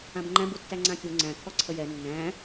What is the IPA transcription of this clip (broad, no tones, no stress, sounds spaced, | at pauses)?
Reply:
ã b ŋ͡ǃ æ̃ b u tː æ ŋ͡ǀ ã kʲ u ŋ͡ǀ æ̃ kʰ ɔ ǀʰ ə j ɛ nː æ̃